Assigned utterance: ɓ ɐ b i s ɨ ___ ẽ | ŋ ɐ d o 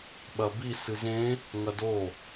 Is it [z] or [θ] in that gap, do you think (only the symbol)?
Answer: z